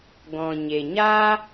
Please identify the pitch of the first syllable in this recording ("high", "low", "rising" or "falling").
low